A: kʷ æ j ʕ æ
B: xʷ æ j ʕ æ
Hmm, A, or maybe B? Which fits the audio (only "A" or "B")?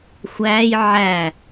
B